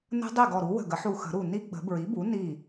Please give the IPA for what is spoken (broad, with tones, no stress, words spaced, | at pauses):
nə̤˦˥ dˤi˥˩ɡɔ˧˩ɾu˩˥ wə̤˧˩ɡə˩˥ħu˧˩xə̤˨˩˦ ɾu˧˩ni˦˥ ɡ͡bə̤˨˩˦bɹi˩˥bu˩˥ ni˥˩